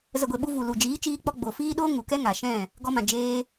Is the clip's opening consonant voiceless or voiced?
voiced